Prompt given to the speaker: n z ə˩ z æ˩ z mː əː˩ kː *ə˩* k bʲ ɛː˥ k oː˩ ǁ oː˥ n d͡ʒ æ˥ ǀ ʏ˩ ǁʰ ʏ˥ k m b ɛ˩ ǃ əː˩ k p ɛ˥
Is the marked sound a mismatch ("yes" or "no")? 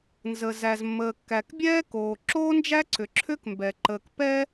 yes